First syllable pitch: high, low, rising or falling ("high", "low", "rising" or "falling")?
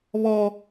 high